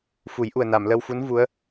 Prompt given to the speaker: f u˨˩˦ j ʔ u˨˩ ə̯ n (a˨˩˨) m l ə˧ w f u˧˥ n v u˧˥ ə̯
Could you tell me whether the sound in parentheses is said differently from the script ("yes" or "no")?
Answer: no